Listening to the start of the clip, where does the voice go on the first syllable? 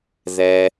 low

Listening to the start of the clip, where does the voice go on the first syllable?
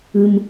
high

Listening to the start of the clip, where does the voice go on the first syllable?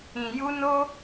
low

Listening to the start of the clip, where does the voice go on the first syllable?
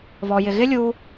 low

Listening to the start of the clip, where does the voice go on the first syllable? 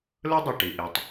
high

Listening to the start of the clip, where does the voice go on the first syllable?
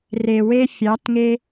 low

